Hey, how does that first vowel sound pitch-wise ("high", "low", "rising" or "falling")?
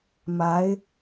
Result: rising